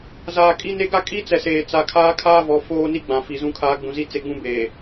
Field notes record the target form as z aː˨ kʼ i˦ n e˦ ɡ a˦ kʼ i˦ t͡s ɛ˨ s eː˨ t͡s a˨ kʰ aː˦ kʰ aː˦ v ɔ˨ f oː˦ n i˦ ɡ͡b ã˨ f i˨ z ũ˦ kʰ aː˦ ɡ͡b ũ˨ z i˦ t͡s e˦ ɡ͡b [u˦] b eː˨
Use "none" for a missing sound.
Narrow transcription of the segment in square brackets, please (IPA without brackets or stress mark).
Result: ũ˦